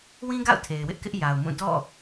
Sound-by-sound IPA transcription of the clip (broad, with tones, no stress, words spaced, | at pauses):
wĩ˦ɡa̰˦˨ʊ̯ tʰe˨ɪ̯wɪ˦ʔkɪ˦ʔ ja˨ʊ̯mũ˦˨ dɔ̰˦˨